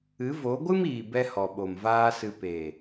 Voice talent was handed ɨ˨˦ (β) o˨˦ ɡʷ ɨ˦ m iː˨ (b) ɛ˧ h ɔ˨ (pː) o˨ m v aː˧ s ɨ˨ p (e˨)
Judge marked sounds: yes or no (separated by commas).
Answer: no, yes, no, yes